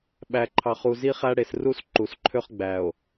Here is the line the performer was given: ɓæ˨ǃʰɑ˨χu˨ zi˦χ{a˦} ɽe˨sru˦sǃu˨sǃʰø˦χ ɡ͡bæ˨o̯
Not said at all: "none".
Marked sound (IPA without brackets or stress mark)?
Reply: æ˦